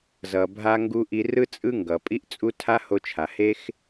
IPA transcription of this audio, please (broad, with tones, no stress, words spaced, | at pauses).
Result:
zʌ˨bʱa˧ ŋɡu˧ʔi˧rɯ˦ t͡sʼɯ˦ŋɡʌ˨ pʼi˦ʔt͡sʼu˦ tʰa˦ho˧t͡ʃʰa˨he˦x